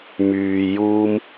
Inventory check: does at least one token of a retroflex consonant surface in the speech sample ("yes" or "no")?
no